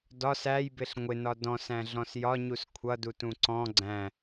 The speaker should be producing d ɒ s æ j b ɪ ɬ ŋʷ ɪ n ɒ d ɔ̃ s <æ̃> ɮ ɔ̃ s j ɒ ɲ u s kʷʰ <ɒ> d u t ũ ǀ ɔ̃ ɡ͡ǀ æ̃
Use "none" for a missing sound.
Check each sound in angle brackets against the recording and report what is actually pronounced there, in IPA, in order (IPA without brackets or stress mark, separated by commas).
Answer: æ̃, ʌ